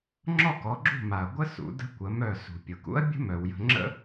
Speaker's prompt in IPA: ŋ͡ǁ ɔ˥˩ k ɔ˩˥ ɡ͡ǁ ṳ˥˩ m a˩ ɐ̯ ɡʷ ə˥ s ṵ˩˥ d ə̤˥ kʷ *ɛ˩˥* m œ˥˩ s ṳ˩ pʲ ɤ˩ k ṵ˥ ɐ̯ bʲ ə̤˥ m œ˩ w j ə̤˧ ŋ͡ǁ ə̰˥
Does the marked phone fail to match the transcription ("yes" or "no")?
yes